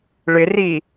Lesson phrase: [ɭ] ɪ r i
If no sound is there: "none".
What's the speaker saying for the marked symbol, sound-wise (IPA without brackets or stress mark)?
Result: ɭ